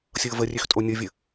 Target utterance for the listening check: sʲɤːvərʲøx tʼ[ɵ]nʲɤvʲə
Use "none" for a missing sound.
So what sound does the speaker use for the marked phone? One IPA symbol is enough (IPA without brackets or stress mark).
o